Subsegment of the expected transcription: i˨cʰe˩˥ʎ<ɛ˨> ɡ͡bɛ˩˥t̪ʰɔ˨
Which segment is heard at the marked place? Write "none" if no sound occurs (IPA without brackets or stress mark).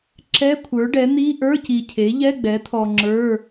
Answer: ɛ˧˥˧